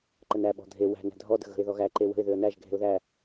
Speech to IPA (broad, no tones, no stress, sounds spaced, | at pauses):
ǃ ə n æ ɓ ɔ̤ dʱ e w æ̤ n æ̤ dʱ ɔ d ə̤ ɣ ə̤ ɪ̯ ð ɔ ɣ æ ǃ e w ə̤ ɪ̯ ð ʏ ə̯ n æ ʒ ɡʱ e̤ ʊ̯ ð æ